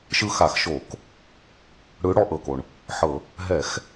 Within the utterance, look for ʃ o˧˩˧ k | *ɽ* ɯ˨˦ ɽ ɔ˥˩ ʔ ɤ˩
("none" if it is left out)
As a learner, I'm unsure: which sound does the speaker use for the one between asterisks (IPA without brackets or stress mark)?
ɽ